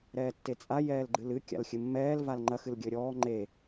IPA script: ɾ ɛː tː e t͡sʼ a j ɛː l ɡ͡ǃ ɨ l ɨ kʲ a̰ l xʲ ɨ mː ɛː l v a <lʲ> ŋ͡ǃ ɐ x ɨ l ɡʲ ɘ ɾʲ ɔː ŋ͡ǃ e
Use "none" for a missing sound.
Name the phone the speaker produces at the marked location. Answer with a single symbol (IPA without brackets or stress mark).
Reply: l